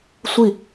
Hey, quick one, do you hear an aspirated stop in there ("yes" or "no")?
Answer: no